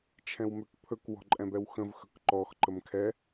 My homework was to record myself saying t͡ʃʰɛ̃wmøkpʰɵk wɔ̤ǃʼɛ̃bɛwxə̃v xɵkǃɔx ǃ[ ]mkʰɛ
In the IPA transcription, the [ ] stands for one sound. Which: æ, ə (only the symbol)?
ə